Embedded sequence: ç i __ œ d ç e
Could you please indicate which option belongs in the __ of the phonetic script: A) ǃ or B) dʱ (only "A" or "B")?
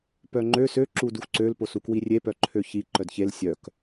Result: A